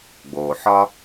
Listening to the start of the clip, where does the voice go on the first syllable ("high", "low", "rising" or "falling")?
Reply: low